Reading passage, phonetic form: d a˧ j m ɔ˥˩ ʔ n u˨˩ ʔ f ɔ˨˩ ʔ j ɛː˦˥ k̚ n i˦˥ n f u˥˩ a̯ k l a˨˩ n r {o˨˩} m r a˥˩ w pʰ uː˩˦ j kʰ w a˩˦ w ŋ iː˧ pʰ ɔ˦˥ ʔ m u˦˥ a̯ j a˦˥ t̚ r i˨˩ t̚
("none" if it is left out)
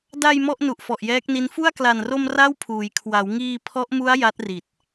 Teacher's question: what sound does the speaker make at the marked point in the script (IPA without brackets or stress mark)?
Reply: o˧